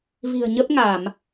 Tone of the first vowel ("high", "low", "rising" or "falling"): low